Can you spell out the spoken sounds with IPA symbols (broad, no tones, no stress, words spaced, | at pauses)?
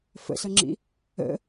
fə̰sʌŋ͡ǁḭ | ə̰